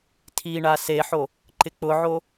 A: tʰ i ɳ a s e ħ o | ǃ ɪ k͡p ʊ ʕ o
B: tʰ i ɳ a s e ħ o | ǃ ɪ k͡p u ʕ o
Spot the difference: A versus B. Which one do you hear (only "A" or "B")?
A